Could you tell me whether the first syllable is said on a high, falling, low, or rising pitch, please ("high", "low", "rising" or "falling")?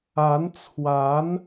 rising